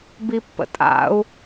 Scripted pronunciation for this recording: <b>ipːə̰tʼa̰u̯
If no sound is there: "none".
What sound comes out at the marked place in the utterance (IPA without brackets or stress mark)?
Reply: b